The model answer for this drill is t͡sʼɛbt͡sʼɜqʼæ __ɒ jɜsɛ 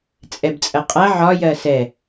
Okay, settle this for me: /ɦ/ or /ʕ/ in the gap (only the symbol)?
ʕ